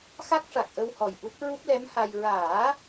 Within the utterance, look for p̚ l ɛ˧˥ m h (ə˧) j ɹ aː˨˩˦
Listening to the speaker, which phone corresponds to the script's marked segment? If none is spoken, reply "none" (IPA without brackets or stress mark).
a˧